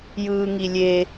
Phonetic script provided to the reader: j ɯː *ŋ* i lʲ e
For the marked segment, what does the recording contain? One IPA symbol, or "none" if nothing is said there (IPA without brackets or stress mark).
ŋ